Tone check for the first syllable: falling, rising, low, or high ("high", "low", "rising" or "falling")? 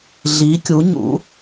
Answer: rising